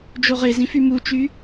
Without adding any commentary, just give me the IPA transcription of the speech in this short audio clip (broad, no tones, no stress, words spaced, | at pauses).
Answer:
d͡ʒoʁezĩ fymut͡ʃy